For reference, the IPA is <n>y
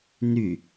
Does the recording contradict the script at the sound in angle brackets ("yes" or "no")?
no